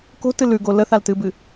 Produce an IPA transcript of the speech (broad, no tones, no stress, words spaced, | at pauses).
ko̤tɨ lʉɡo ləθaltɨbɨ